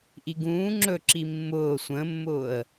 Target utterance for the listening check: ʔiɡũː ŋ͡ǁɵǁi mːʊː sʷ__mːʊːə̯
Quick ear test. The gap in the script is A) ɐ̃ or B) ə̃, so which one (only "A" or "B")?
B